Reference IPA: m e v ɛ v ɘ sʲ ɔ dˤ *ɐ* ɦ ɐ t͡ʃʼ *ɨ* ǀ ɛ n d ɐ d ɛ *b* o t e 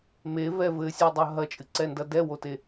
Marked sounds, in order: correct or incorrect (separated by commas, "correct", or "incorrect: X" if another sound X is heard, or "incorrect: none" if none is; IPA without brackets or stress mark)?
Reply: correct, correct, incorrect: w